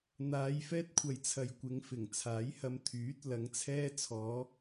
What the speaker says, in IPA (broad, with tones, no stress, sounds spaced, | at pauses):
n̪ aː˨˧ j f ɛː˥ t̚ kʷʰ ɐ˨ j t͡sʰ ɐ˨ j kʷ ɪ˨˧ ŋ f ɪ˨˩ ŋ t͡sʰ aː˨˥ j h ɐ˧ m t̪ʰ yː˨˥ t̚ l ɐ˨˧ ŋ t͡sʰ ɛː˧ t͡sʰ ɔː˨˧